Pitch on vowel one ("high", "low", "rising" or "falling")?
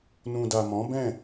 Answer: low